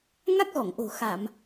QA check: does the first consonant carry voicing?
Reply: yes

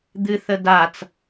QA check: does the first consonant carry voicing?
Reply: yes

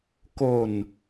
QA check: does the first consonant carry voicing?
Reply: no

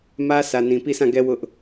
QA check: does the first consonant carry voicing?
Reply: yes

